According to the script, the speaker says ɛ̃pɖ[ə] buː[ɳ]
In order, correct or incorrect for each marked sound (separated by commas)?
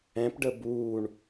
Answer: correct, correct